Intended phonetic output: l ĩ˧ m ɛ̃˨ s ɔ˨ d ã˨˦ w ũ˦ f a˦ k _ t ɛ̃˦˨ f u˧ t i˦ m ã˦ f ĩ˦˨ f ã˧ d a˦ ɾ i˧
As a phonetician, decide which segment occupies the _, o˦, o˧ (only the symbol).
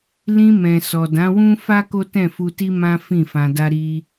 o˦